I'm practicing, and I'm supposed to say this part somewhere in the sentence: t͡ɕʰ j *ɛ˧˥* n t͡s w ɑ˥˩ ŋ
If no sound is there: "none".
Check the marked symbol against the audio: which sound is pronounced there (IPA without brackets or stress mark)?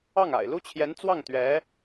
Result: ɛ˧˥